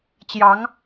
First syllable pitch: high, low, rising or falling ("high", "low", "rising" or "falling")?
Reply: rising